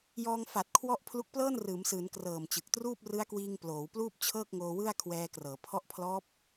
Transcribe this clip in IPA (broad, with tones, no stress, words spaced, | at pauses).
jɔː˧ŋfa˨˩t̚kʰwɔ˦˥ʔ pʰlu˦˥k̚plɤː˥˩n rɯː˩˦msɯː˩˦n krɤː˨˩mt͡ɕɯ˨˩k̚truː˥˩p̚ rɯ˦˥a̯kwiː˧ŋ ploː˩˦wpluː˥˩p̚t͡ɕʰɤː˥˩k̚ŋoː˧ wɯ˥˩a̯ kʰwɛː˧krɤː˩˦pʰɔ˦˥ʔpʰlɔː˦˥p̚